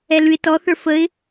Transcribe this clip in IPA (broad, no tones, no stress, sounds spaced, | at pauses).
ɛ l ʉ ɪ̯ t ɔ θ ə˞ f ə ɪ̯